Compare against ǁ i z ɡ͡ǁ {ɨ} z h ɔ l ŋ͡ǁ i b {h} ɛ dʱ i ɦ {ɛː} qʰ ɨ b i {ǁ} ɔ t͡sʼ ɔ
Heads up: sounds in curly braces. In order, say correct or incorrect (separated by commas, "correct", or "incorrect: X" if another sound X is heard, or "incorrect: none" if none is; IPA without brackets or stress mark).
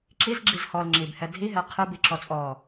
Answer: incorrect: i, correct, incorrect: ɛ, correct